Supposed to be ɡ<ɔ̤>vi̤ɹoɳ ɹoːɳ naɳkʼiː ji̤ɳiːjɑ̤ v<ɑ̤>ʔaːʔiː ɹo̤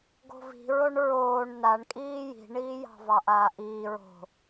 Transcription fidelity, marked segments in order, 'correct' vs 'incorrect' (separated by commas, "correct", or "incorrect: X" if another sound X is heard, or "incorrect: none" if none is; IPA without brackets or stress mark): incorrect: o̤, incorrect: ɑ